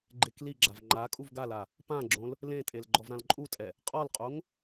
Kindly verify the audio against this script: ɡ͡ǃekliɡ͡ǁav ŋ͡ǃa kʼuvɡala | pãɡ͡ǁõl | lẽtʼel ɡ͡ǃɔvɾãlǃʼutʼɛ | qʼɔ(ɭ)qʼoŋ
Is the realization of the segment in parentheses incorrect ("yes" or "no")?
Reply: yes